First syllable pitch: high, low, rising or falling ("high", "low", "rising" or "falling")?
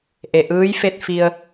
low